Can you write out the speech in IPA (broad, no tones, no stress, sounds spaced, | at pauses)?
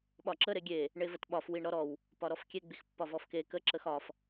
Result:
ɓ ɒ ǁ ə ɾ e ɡʲ e | ɳ e v ə t ɓ ɒ f w i ɳ ɾ ɔ ɾ ɔ w | p ɒ ɾ ɔ f kʲ e ɡ͡b i x pː ɒ v ɔ f k e k ə ǁ ə x ɒ f